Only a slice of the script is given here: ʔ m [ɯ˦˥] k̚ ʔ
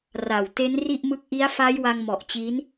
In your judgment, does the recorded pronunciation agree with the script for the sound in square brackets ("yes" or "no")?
yes